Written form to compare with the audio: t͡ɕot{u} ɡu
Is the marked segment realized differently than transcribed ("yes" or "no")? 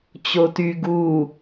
yes